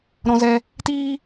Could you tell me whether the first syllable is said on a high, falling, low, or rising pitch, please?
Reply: high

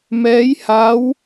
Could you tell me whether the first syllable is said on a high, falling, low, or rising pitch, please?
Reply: rising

